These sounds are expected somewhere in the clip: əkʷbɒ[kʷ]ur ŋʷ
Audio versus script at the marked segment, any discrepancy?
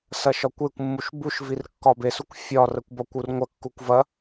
no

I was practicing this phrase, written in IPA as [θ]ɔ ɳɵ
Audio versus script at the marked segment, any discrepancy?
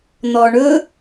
yes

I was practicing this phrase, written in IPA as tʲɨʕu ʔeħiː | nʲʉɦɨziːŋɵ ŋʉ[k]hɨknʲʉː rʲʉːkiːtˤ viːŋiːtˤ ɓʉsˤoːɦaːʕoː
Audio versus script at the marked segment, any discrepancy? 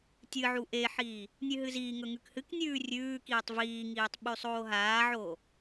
no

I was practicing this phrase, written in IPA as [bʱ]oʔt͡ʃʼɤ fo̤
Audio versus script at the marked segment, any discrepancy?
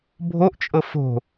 no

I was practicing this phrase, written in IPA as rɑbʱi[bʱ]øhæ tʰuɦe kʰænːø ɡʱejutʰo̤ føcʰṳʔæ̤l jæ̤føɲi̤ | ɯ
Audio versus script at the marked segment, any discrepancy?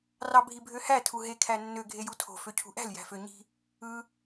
no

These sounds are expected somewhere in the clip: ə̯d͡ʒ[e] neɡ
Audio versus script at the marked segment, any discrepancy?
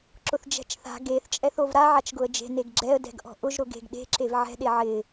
yes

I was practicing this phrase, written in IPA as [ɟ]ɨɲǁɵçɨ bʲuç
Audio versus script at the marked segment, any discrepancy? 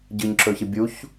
no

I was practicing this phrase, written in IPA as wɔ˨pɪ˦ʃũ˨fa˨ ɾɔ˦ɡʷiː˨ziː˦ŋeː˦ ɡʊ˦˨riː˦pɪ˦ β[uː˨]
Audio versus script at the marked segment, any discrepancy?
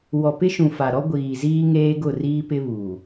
no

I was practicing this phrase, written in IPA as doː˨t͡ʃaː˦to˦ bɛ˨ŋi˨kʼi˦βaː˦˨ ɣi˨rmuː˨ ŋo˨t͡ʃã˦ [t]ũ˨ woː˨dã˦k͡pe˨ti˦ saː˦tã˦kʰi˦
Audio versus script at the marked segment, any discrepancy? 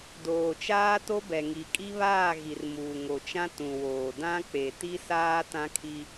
no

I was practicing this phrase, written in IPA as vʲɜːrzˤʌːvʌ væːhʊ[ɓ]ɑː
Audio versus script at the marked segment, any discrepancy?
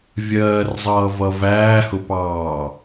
yes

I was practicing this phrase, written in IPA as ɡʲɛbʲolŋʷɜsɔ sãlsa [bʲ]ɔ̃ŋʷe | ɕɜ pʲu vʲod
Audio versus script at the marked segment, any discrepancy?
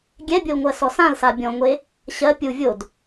no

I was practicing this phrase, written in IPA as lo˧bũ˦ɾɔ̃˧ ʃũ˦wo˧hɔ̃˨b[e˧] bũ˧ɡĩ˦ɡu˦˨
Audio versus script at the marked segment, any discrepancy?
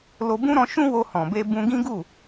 no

